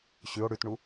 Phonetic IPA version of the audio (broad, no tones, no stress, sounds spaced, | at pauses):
ɕ ʉ o̯ ɽ ʉ t ɳ u